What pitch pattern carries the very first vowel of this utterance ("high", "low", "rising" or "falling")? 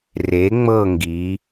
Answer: rising